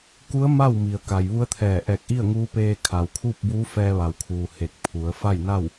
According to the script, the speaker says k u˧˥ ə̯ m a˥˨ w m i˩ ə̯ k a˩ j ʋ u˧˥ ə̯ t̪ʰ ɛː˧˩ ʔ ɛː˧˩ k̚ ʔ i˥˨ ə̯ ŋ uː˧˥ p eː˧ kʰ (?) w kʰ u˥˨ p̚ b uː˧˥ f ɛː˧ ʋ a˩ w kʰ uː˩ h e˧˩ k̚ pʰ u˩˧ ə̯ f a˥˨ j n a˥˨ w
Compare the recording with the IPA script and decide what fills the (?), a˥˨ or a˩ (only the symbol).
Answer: a˩